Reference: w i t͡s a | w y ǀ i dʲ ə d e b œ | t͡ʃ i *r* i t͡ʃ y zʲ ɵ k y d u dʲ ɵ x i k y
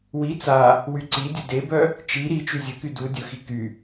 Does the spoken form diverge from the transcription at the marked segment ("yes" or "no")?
yes